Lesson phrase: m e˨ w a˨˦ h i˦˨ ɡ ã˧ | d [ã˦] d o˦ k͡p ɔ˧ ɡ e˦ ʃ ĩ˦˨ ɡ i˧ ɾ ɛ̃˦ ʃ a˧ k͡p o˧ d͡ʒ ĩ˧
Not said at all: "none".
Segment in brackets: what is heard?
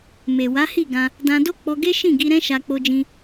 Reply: ã˧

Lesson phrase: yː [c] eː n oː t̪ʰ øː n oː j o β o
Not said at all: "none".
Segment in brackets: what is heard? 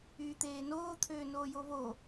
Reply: t̪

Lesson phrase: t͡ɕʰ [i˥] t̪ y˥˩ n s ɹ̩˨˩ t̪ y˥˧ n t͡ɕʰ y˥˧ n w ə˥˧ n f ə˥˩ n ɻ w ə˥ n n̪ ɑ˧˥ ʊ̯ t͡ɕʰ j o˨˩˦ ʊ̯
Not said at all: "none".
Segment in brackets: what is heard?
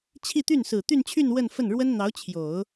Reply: i˥˧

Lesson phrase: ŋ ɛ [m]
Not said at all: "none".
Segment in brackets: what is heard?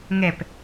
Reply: p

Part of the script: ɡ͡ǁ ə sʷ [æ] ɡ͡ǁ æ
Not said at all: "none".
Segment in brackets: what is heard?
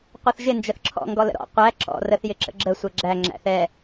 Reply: ɛ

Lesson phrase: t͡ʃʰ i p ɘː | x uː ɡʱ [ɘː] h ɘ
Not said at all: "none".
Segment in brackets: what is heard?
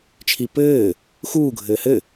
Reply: ɘː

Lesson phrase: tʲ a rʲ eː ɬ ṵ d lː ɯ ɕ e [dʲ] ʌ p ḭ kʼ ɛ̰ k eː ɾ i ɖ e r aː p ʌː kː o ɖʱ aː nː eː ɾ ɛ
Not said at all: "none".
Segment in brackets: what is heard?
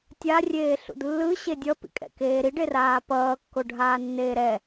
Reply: dʲ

